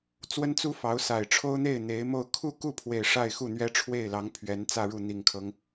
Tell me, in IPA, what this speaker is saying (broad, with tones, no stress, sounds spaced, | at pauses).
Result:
t͡s w ə˥ n t͡s u˥ f ɑ˧˥ ʊ̯ s a˨˩ ɪ̯ ʈ͡ʂʰ o˥ ʊ̯ n̪ e˥˩ ɪ̯ n̪ e˧˥ ɪ̯ m o˥˧ ʊ̯ kʰ u˥˧ k u˥˩ pʰ w e˨˩ ɪ̯ ʂ a˥˧ ɪ̯ x u˥˩ n̪ ɥ ɛ˥ ʈ͡ʂʰ w e˥˩ ɪ̯ l ɑ˧˥ ŋ pʰ ɥ ɛ˧˥ n t͡s ä˥˧ ɻ u˥˩ n̪ i˨˩ ŋ kʰ ɤ˦ ŋ